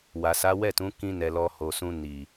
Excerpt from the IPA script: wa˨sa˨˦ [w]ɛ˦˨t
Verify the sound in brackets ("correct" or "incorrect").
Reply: correct